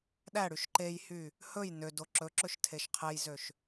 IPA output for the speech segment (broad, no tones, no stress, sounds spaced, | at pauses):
ɗ æ ɽ y ʃ ǃ e j h y | h ɵ j n ø d o ǁ ɵ ǁ ɵ ʃ tʰ e ʃ qʰ e j z ø ʃ